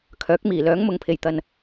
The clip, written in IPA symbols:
kʰ œː˨˥ k̚ m iː˨˩ l œː˨˥ ŋ m ʊ˨ ŋ pʰ e˨˩ j t̪ ɐ˨ n

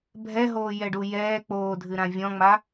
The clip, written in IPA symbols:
bʱ ɛ ɦ oː j ɛ ɖ u j ɛː k͡p oː dʱ ɨ ɾ ã vʲ ɔ̃ ŋ͡m a

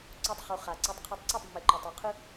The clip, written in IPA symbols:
ǀ u˦ tˤ χ u˧ χ a˨ ǀ e˧ tˤ qʰ ɛ˧ tˤ ǀ ɯ˦˨ tˤ mː e˨ ǃ o˨ tˤ o˨ qʰ ɯ˦

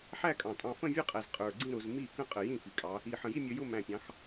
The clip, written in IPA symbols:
ħ æ˥˧ kʼ ɑ̃˨˩ tʼ ɑ̃˧ f ə̃˥˧ vʲ ə˞˥˧ qʼ æ˨˩ z qʼ ə˞˨˩ ɡ͡ǀ ĩ˥˧ ɾ ʊ˩˧ z m i˥˩ k ə̃˥˩ qʼ ə˨˩ j ĩ˥˩ f i˩˧ kʼ ɑ˩˧ | i˨˩ ħ ə̃˨˩ j i˥˧ mʲ ə˧ j ʊ˥˧ m æ̃˨˩ pʲ ɑ̃˩˧ x

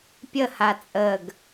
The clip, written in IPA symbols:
pʲ ə h a t͡sʼ ə ɡ

